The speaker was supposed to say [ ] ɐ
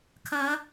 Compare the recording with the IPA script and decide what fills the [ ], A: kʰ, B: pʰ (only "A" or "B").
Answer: A